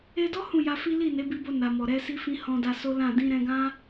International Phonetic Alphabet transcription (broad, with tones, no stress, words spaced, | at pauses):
e˧dɔ˦ hũ˦˨ja˧fi˦ li˦˨ne˨˦bi˧bo˧ na˨ mɔ˨ɾɛ˧ si˧fĩ˧ hɔ̃˧da˧so˦lã˦˨ dĩ˧ɾɛ̃˧ɡã˦